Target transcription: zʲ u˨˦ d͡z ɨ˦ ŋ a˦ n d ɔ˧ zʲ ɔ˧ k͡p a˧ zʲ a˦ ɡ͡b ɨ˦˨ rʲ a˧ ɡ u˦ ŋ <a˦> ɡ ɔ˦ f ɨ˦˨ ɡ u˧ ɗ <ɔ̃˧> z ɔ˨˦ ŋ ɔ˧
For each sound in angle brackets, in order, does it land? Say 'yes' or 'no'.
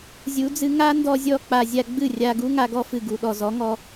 yes, no

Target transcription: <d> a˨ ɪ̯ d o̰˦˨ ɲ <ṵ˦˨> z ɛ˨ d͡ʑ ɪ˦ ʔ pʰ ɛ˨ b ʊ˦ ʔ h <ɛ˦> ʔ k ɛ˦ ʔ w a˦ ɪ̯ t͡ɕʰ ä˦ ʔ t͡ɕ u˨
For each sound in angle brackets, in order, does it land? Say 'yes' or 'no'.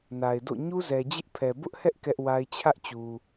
no, no, yes

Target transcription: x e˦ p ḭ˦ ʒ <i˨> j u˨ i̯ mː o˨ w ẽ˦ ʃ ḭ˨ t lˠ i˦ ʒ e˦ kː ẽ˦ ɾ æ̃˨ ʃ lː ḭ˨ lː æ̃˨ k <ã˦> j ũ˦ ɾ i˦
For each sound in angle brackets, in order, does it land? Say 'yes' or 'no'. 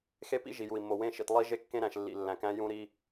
yes, no

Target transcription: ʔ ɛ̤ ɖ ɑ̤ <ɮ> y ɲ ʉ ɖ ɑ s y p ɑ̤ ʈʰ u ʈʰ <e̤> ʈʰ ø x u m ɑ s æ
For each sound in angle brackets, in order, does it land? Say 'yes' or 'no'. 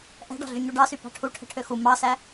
yes, no

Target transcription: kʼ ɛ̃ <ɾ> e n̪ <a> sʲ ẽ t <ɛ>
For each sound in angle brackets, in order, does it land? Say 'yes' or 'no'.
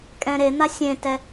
yes, yes, yes

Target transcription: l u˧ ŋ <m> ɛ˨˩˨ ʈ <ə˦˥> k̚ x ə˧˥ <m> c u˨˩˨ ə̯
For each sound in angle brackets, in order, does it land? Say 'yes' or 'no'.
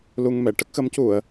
yes, yes, yes

